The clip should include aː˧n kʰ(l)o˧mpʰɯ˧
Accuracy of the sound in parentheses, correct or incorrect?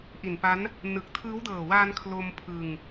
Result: correct